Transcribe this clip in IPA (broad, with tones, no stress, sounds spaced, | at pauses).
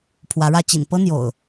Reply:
pʰ w ä˨˦ ɻ ä˥˨ t͡ɕ ḭ˨˩ n p ɤ˦ n̪ j o̰˨˩ ʊ̯